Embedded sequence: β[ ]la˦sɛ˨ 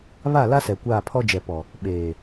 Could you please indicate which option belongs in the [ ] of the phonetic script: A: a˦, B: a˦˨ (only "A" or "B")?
B